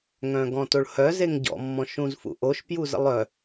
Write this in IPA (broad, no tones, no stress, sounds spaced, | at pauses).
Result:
ŋ œ̃ ɡ ɔ̃ t o ɭ h œ z e ŋ ɟ ɔ̰ mː ɔ̃ ʃ ũ z f ṵ ʔ o ʃ p j u z ə̰ lˠ œ